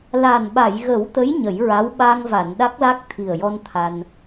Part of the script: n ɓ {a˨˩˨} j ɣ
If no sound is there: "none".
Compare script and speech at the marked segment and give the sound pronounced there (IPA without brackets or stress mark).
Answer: a˨˩˨